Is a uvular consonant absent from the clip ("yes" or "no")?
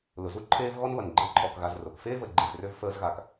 yes